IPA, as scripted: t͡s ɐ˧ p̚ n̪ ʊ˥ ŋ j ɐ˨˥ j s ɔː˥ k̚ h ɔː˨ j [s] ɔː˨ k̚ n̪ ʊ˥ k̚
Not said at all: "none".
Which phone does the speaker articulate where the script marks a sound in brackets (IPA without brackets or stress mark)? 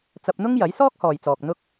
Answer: t͡s